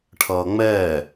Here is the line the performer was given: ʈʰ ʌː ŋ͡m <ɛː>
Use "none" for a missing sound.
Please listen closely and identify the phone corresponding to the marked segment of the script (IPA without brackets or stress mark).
ɛː